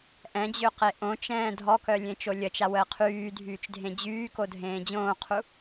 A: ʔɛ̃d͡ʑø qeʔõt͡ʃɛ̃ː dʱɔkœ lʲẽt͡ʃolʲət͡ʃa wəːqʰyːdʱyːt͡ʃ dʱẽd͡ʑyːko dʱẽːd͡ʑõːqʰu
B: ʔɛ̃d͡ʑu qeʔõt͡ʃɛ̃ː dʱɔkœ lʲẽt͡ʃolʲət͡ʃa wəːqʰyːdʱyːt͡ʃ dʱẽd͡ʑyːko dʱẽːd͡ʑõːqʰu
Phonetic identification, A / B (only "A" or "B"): A